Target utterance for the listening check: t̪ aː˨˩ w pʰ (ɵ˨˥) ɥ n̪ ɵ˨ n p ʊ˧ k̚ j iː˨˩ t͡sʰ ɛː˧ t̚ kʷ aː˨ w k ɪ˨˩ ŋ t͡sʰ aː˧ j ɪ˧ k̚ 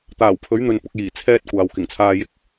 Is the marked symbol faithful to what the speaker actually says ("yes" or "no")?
yes